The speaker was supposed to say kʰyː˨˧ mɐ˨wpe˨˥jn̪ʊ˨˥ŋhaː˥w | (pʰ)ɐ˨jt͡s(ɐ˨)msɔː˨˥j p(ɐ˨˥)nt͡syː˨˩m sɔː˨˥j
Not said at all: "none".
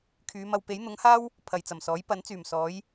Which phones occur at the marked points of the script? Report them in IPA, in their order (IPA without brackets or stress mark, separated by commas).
pʰ, ɐ˨˩, ɐ˨˥